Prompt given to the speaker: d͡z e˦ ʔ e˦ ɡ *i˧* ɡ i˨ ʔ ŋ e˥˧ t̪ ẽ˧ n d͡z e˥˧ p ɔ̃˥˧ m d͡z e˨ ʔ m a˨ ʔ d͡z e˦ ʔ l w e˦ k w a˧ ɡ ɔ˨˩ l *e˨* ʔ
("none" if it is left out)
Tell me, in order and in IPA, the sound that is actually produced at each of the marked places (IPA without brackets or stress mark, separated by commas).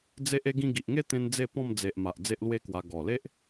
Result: ĩ˧, e˦